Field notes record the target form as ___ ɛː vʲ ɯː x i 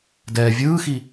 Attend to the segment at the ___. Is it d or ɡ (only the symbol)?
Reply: d